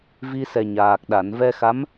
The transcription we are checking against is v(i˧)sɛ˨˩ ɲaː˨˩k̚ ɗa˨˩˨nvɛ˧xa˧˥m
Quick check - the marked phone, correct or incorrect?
correct